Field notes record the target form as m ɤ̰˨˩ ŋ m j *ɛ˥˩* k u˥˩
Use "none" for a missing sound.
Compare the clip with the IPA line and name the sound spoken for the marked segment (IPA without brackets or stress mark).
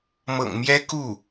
ɛ˥